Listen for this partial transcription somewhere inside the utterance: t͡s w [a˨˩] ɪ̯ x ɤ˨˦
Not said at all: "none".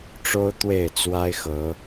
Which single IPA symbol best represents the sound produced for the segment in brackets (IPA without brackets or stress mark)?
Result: a˦